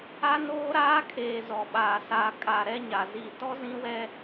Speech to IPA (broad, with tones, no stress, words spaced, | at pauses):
a˦noː˦ɾaː˦kʰeː˨ zɔ˨ɓaː˨saː˨kʼa˨ ɾɛ˦ɲa˨ ziː˨tɔ˦zĩ˦wɛ˦